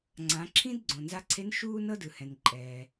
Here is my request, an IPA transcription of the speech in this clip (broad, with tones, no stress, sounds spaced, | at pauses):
ŋ͡ǀ ã˩˧ ǁʰ ĩ˥ d ɡ͡ǀ õ˩ n z a˧ ǀʰ e˧˥ n ʃ uː˥ n ɤ˥ d ɯ˩ h ɛ̃˩ n ǃʼ ɛː˩